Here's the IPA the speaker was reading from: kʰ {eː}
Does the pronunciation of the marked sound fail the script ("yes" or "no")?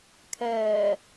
yes